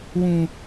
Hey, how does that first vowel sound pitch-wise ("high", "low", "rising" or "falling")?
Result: high